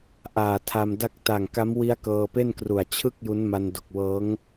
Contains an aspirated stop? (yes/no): yes